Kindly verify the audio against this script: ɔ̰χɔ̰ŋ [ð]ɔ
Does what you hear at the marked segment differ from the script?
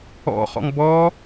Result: yes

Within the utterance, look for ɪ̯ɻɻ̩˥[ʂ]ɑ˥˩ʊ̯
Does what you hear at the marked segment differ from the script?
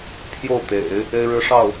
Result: no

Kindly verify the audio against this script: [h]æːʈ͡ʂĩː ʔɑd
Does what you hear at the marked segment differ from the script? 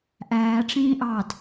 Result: yes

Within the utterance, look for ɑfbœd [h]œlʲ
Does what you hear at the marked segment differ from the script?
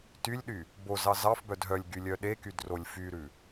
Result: yes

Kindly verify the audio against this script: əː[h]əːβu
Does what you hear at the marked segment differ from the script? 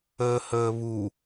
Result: no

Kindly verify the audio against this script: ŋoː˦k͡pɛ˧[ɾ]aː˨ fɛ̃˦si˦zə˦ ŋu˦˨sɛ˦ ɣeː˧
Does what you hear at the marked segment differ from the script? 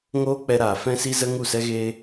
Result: no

